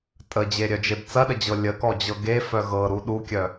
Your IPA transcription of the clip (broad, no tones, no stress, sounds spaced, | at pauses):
tʼ ə d͡ʑ e ɾʲ œ d͡ʒ e b t͡s ɐ ɗ ə d͡ʑ ɤ lʲ ə k ɔ d͡ʑ ɤ ɡ e f œ ɣ ɤ ɾ u ɗ u kʲ œ